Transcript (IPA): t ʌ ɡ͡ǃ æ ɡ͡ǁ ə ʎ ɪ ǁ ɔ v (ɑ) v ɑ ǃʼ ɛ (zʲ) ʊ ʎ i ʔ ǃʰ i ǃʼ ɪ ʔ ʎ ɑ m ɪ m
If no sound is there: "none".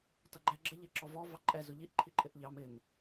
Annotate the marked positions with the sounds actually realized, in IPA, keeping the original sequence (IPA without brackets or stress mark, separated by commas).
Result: ɔ, z